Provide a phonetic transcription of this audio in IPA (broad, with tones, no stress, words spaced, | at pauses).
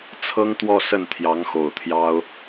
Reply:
t͡sʰɤ˥ŋt̪wɔ˥˧ sə˥˩nt̪ʰjɑ˧˥ŋ xo˨˩ʊ̯t̪ʰjɑ˥ʊ̯